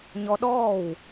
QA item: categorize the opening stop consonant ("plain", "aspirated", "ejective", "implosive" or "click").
implosive